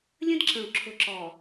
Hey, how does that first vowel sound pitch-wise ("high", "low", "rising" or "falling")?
high